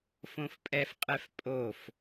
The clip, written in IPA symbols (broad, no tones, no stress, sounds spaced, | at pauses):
f õ f pʼ ɛ f qʼ ɛ f pʼ o f